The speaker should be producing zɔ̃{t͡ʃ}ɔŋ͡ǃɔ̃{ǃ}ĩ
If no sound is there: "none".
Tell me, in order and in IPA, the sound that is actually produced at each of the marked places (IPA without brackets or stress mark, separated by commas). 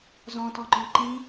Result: t, ǃ